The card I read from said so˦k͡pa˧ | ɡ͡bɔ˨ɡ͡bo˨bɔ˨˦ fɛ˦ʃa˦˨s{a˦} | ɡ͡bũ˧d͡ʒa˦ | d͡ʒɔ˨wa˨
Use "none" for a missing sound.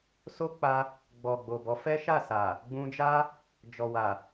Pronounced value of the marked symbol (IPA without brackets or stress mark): a˨